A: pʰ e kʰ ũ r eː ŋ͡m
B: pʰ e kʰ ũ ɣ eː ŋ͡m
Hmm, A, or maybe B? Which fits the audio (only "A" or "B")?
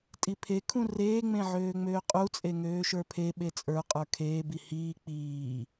A